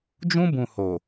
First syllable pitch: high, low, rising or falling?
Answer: high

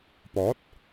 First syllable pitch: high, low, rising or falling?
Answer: rising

